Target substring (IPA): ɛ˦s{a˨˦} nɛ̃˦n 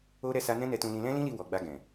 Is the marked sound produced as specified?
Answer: no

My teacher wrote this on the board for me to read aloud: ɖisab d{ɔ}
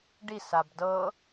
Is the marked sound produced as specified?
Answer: no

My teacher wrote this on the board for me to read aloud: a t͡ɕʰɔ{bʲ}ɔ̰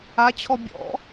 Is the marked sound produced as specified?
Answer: yes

